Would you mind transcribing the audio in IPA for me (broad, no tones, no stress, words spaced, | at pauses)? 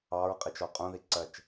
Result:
ɑɹqʼit͡ʃɔ qʼũðiǀɜt͡ʃ